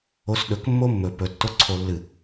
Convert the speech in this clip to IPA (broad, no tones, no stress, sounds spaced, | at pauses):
o s ɗ ɵ k mː o mː ɵ p ɵ tː o ǀʰ o lː ɨ